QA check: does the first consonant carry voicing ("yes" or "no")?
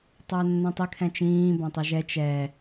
no